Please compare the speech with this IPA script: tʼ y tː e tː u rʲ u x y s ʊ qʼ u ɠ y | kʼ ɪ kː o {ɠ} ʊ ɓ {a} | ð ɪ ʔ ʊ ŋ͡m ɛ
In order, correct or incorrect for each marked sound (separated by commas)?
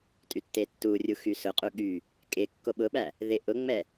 incorrect, incorrect